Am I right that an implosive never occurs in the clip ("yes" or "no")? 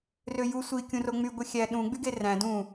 no